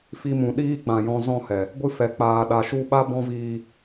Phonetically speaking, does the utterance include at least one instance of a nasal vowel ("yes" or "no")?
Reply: yes